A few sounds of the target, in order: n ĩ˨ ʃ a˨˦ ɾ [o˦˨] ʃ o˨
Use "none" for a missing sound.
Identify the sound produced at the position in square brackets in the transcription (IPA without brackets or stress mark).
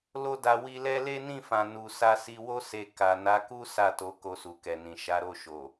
o˦˨